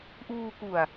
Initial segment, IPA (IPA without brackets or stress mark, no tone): ʔ